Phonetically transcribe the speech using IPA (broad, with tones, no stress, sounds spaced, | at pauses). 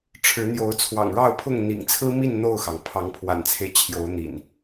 ʈ͡ʂʰ ɻ̩˨˦ n̪ j o˨˦ ʊ̯ t͡sʰ w ɑ̰˨˩ ŋ ɻ ɑ˥˨ ʊ̯ pʰ ʊ˥˨ ŋ n̪ ḭ˨˩ ŋ t͡sʰ ɹ̩˦ m i˥˨ n n̪ o˥˨ ʊ̯ x ɑ˩ ŋ pʰ ɑ˨˦ ŋ pʰ w a̰˨˩ n t͡sʰ e˦ ɪ̯ t͡ɕʰ j o˨˦ ʊ̯ n̪ ḭ˨˩ n